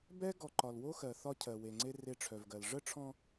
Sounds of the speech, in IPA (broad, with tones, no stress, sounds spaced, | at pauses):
b ɛ˦ ɡ ɔ˨ ǃ ɒ˨ l w o˦ x ɜ˨ θ ɒ˦ cʰ ɜ˨ w e˨ ŋ͡ǀ e˦ r e˦ ʈ͡ʂʰ œ˨ v ɡ ɜ˨ l ʐ ə˦˨ ʈ͡ʂʰ ɔ̃˨